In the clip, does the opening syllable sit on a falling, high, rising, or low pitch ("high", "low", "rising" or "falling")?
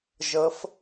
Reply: rising